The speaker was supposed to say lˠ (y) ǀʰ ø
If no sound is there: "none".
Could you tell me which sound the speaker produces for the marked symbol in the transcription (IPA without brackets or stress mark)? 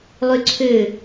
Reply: y